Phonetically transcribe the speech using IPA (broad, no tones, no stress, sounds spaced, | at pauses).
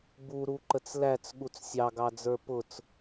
b u ɾ u ǃ ə t͡s l æ t͡s ɠ u t͡s sʲ ɑ ɡ ɑ d͡z ə˞ p ʊ t͡s